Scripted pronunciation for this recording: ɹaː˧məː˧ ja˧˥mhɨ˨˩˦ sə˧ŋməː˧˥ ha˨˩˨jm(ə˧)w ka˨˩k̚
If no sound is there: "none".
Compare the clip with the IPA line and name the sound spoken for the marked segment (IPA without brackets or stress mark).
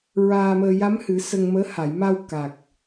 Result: a˧